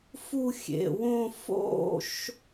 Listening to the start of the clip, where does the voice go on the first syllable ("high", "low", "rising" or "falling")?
falling